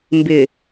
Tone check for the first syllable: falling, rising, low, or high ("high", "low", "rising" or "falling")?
low